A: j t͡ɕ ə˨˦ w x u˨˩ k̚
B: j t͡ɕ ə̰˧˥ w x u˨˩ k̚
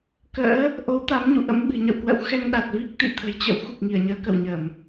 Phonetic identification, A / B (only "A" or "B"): B